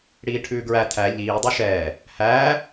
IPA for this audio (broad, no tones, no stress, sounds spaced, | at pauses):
ɽ iː ʈʰ ʉː ɡ ɹ æ tʰ æ ʎ iː dˤ u ʃ ɛː | h æː